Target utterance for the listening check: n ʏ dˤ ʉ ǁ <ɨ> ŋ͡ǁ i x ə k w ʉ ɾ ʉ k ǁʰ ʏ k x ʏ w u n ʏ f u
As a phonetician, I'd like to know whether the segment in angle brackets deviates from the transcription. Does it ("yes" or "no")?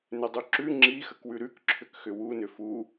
yes